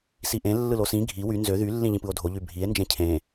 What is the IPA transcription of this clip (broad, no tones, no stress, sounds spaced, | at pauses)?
s i ʔ ẽ lː ɯ l o s ĩ ɡʱ i w y n z ø ð y lː ĩ ʎ ĩ p ɯ o̯ dʱ o ʎ y bʱ i e̯ n d͡ʒ ẽ cʰ ẽ